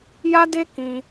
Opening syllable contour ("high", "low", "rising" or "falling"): high